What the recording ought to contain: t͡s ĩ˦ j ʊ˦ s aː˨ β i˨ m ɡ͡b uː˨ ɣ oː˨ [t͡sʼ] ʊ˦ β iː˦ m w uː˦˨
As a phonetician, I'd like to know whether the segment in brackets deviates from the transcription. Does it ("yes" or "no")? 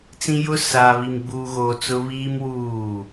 yes